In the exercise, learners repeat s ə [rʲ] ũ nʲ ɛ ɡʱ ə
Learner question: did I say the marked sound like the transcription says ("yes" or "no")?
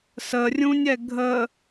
yes